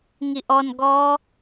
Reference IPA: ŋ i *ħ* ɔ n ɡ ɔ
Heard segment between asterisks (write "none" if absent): ʔ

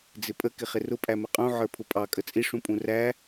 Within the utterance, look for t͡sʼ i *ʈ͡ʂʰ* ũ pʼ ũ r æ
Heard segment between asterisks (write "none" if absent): ʂ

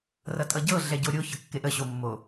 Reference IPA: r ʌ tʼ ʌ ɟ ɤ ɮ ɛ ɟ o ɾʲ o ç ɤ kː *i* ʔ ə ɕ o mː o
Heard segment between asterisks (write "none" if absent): e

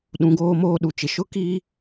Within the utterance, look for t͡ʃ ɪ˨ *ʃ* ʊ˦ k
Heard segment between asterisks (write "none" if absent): ʃ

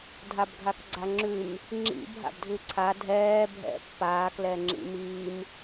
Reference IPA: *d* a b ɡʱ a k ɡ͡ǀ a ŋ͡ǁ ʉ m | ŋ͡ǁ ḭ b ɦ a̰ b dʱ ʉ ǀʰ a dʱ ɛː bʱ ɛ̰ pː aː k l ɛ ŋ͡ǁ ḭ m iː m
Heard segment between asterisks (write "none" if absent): dʱ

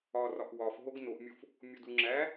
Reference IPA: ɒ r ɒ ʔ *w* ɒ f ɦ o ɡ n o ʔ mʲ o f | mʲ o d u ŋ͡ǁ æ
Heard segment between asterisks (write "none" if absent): w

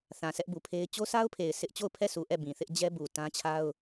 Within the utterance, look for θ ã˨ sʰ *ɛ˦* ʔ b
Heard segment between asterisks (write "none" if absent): ɛ˦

